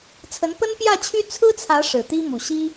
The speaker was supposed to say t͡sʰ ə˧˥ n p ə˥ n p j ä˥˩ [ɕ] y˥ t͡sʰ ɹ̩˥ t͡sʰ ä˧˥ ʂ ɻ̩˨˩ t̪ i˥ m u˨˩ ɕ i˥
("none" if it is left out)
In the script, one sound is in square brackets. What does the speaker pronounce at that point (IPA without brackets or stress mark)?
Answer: t͡ɕʰ